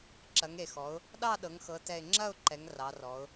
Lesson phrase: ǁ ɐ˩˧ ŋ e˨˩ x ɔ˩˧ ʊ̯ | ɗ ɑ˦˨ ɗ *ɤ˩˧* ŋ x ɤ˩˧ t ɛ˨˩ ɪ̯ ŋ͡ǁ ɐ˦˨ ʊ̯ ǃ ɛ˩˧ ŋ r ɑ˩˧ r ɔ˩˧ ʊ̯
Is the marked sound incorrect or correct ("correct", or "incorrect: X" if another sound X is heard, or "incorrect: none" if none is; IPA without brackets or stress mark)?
correct